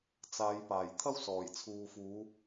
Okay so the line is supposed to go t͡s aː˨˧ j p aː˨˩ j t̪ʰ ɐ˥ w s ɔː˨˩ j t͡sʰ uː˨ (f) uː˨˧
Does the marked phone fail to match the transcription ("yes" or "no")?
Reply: no